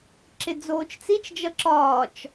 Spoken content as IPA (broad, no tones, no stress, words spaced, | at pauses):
ǁɪd͡zoːt͡ʃt͡sit͡ʃd͡ʒʌ ǁɒːt͡ʃ